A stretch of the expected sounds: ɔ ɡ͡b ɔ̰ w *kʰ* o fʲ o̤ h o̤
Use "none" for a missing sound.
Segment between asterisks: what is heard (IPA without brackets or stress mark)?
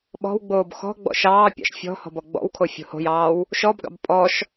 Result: kʰ